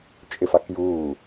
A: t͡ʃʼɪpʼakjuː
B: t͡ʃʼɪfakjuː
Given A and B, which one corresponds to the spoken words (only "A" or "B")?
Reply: B